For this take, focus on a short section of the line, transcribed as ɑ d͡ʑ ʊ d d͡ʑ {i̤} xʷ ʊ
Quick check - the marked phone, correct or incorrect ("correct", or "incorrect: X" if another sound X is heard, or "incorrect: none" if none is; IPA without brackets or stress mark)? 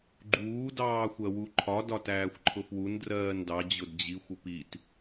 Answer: incorrect: i